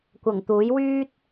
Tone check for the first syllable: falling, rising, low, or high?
low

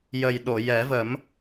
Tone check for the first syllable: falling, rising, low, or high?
low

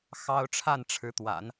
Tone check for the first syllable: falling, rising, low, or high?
high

